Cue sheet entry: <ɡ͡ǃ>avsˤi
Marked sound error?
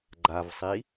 no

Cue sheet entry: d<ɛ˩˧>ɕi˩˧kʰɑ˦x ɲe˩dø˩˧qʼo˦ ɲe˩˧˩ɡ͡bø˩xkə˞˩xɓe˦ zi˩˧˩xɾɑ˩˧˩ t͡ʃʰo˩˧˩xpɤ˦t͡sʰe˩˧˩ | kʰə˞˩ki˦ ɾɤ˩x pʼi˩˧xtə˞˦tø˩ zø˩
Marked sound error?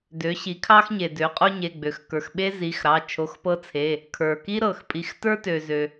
yes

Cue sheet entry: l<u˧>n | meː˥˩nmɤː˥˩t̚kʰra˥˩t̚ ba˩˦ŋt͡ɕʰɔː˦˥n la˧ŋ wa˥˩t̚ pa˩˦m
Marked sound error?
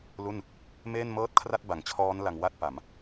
yes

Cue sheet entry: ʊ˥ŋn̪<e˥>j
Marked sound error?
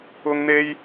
no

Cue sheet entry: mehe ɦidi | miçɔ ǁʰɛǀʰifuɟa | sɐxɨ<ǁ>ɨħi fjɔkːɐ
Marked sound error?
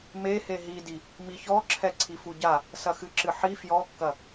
no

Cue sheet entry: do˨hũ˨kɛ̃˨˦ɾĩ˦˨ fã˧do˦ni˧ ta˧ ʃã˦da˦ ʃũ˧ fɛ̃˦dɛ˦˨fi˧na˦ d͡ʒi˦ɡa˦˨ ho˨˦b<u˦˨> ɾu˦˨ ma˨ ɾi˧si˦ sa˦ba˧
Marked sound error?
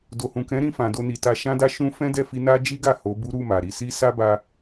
yes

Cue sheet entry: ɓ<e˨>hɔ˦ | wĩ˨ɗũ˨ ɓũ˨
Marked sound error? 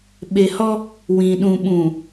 no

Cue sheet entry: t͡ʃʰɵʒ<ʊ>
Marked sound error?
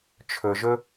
yes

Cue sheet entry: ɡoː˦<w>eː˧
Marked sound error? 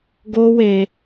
no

